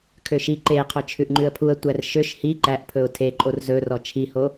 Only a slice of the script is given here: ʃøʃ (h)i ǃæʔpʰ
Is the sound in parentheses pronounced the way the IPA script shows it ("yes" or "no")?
yes